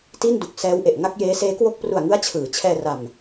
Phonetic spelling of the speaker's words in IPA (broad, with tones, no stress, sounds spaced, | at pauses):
t i˥˩ n d u˨˩ k̚ s ɛː˦˥ w ʔ e˨˩ ʔ ŋ a˥˩ k̚ j eː˦˥ s eː˦˥ k w o˥˩ k̚ p r u˨˩ a̯ ŋ ɯ˦˥ a̯ t͡ɕʰ ɯː˩˦ t͡ɕʰ ɛː˧ r a˨˩ m